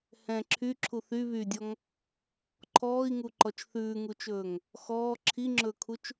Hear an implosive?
no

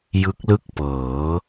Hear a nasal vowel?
no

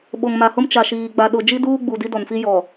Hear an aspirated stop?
no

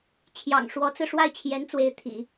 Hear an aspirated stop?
yes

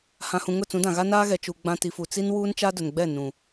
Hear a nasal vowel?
yes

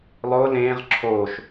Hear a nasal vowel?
yes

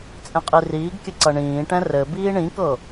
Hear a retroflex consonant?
yes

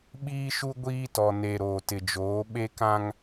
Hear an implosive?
yes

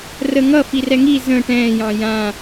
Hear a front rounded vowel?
no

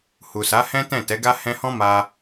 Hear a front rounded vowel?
no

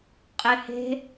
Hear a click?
no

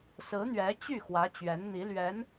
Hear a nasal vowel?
no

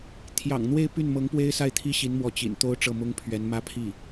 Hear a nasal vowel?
no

